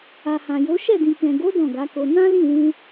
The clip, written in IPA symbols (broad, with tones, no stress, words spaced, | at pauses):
a˨hã˨jo˨˦ ʃɛ˦˨dĩ˨kɛ̃˨ ɡo˨˦ dɔ̃˦˨ɡa˨˦ko˧ nã˦ lĩ˦˨wũ˧